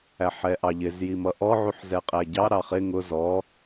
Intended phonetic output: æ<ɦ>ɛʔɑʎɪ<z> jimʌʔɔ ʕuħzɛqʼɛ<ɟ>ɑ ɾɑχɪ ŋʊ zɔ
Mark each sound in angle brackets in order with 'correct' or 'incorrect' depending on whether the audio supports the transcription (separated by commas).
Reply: incorrect, correct, correct